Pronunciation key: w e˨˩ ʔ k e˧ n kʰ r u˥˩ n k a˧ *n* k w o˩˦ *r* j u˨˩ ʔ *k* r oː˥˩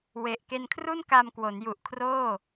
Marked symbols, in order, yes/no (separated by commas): no, no, no